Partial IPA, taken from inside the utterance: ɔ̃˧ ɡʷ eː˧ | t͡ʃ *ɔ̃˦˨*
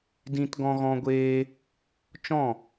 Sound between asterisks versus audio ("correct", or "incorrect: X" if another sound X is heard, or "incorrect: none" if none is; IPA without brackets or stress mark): correct